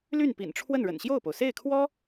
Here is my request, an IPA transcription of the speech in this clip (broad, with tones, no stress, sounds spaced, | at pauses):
l y˥˩ n p ḭ˨˩ n ʈ͡ʂʰ w ə˥˩ n ɻ ə̰˨˩ n ɕ j o˥˩ ʊ̯ p o˩ ʊ̯ s e˥˩ ɪ̯ kʰ w ɔ˥